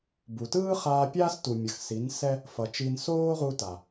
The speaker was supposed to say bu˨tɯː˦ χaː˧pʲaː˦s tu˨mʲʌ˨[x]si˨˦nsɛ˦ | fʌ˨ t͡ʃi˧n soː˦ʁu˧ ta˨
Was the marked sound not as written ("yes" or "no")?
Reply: no